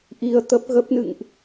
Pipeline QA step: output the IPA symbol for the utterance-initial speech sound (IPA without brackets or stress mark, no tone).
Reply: ʔ